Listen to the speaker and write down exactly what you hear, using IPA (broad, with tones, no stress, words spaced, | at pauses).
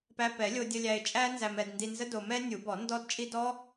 pæ˧pɛ˨˩˦lʲo˧dʲə˧ lʲæ˧ɪ̯t͡ʃʼæ˦˥nzæ˧mɛ˧d ndi˧nzə˦˥do˧mɛ˦˥ nʲu˨˩˦bɔ˨˩˦ ndɔ˦˥dt͡ʃʼi˦˥ dɔ˦˥